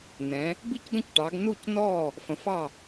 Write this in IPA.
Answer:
nɛ̃˩˧ | bi˥˩cɡə̃˥˩cʈɑ˩˧ɡ nu˥˩cnɔ˥˩ | fə̃˩˧fɑ˥˩

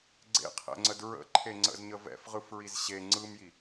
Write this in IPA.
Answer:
ɡ͡ǀḛqʰɛ̰ŋ͡ǀəd ɹə̰ǃʰeŋ͡ǀə̰zɲə vɛ̰fʁɯfɹiz ɕe ŋ͡ǀɯmji

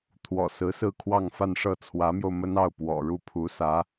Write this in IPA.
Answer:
t̪ʰwɔ̰˨˩sɹ̩˧˥sɹ̩˥˧kʰwɑ˥˧ŋ fa˥˧nʂɤ˥˩ t͡sʰwä˧˥mjo˧ʊ̯mə˥n ɑ˥˩ʊ̯ pwɔ̰˨˩ɻu˥˩pʰu˧˥sä˧˥

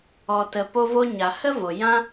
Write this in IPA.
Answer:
ɔ˨tə˨ po˧vo˧ɲa˨ hə˦vo˨ jã˦

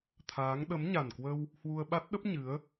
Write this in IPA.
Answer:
t̪ʰaː˨˦ŋ ɗə˨˦mɲa˨˩nkwə˧w | hwu˧ə̯ɓa˦˥t̚ɗə˦˥p̚ ɲɨ˨˦ə̯

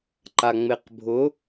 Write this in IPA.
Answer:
ǃaŋ͡meqbʱʊ

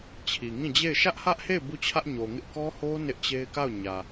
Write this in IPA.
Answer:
t͡ɕʰi˨ŋĩ˦˨d͡ʑe˦˨ɪ̯ ʃä˦ʔhä˦ʔhe˦˨ɪ̯ bu˦˨t͡ɕʰä˦ʔɲo˨ŋɪ˦ʔ kɔ˦ho˦ nɪ˦ʔt͡ɕe˦ɪ̯ ka˦˨ʊ̯ ɲä˨

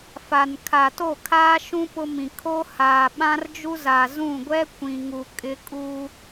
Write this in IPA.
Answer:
fa˨nkʰa˨ to˦˨ kʰaː˦ʃũ˦ pʊ˦mĩ˨ kʰo˦haː˨ɓã˦rd͡ʒu˦ zaː˨zũ˦˨ ɡʷɛ˦ kʷĩ˨ŋu˨ kʼɪ˦kʼuː˦

